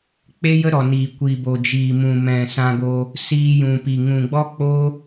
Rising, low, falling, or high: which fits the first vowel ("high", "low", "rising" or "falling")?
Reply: high